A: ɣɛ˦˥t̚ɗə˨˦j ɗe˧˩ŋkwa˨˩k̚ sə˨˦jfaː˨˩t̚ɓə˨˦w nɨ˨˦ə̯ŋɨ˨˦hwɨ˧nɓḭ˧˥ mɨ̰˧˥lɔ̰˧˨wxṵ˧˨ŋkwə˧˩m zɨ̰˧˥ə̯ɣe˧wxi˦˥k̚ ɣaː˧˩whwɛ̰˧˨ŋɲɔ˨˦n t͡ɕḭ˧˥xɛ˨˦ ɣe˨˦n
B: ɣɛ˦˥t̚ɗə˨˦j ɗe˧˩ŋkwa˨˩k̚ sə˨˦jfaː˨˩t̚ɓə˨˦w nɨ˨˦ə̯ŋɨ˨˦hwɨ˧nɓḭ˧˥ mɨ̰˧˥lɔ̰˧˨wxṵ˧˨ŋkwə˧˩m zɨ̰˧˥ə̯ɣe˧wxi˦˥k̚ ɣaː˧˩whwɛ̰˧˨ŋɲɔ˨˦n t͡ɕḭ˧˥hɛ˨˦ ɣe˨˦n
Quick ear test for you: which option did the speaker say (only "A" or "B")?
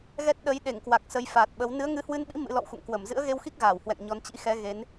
A